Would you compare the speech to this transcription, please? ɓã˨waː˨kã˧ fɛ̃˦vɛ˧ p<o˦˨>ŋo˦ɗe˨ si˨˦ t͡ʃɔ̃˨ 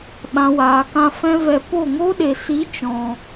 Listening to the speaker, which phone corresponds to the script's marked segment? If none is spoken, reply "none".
o˦˨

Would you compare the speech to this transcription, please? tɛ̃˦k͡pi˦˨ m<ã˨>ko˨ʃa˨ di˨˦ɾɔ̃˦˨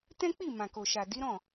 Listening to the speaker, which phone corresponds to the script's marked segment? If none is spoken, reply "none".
ã˨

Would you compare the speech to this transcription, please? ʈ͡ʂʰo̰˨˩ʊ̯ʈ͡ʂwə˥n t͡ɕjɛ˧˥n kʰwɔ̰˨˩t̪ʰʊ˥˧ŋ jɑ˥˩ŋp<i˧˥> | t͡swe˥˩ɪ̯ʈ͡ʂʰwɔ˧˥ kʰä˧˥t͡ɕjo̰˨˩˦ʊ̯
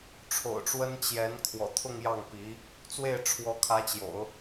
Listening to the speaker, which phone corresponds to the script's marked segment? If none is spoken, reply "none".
i˧˥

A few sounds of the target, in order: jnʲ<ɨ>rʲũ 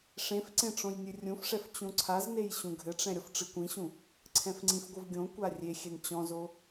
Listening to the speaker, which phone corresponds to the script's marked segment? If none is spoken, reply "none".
ɨ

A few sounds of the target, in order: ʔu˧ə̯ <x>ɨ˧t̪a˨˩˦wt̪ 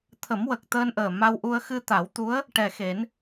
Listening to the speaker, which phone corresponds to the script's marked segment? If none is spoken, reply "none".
x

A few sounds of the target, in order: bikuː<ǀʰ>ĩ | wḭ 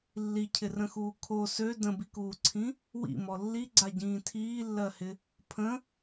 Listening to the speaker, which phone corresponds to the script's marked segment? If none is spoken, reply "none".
ǀʰ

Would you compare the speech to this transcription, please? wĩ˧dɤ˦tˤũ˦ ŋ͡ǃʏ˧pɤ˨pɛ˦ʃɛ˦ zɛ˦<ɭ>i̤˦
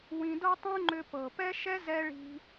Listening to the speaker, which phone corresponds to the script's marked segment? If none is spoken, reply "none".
ɭ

